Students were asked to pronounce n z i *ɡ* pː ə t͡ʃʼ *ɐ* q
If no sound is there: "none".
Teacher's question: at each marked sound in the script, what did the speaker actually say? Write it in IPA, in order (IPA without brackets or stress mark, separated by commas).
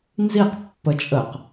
q, ə